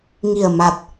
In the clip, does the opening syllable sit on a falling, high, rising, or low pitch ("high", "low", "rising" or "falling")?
low